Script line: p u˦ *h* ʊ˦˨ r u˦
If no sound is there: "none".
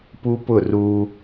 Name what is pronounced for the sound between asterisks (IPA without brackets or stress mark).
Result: p